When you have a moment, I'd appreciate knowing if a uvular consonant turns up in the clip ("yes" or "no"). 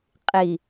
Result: yes